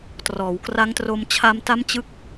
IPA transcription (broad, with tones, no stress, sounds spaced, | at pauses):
t r ɔː˩˦ w k r a˦˥ ŋ t r o˧ m t͡ɕʰ a˧ m t a˦˥ m t͡ɕ ɯ˦˥ k̚